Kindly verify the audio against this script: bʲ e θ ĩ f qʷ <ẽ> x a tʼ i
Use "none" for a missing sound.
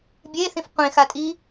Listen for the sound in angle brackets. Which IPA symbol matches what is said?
ẽ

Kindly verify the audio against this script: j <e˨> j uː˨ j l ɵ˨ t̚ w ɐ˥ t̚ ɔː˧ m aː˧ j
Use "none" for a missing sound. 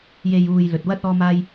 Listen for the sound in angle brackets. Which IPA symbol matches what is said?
e˨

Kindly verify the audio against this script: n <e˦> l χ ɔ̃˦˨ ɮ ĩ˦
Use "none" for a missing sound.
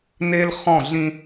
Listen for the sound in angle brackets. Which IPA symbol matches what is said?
e˦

